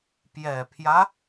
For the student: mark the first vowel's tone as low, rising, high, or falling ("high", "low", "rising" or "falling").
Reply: low